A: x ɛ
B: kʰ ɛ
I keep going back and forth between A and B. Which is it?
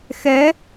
A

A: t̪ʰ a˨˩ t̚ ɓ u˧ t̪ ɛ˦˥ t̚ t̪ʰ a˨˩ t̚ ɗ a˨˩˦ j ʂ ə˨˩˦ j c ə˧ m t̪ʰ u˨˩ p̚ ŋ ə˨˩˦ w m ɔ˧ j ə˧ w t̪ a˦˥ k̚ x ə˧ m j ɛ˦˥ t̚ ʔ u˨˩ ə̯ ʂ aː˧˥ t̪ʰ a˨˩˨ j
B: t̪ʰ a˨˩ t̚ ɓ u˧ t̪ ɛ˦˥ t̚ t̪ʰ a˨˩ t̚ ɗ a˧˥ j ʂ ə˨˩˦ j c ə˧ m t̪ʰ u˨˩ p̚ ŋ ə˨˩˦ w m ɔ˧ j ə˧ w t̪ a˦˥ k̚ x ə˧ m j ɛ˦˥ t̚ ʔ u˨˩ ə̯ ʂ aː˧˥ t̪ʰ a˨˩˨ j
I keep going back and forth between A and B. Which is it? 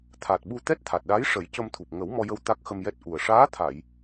B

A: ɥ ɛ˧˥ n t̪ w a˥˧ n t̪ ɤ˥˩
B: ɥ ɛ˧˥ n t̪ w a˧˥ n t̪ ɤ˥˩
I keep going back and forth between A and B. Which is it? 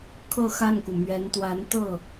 B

